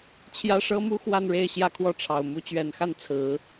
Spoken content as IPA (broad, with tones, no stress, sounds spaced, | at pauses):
t͡ɕʰ j ä˥ ʂ ɤ˥ m u˥ x w a˥˧ n ɻ e˥˧ ɪ̯ ɕ j ä˥˧ kʰ w ɔ˥˩ ʈ͡ʂʰ ɑ˨˩ ʊ̯ m u˧˥ t͡ɕ ɥ ɛ˨˩ n x a˥˩ n t͡sʰ ɹ̩˨˩˦